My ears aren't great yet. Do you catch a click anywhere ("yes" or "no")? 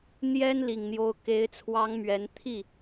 no